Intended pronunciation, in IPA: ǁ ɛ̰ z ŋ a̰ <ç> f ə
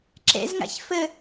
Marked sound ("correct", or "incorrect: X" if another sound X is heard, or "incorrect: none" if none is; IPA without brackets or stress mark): correct